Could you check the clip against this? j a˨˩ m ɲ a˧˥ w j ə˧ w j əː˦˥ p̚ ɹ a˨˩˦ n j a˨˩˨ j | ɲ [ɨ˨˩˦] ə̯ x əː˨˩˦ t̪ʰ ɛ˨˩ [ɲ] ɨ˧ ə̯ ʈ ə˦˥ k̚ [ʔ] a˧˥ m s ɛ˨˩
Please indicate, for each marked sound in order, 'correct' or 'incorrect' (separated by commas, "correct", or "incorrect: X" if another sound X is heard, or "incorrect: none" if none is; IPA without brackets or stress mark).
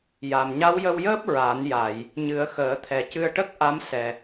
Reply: correct, incorrect: c, correct